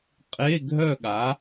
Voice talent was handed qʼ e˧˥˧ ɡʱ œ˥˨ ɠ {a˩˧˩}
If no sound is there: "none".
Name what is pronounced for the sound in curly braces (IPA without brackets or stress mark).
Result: a˩˥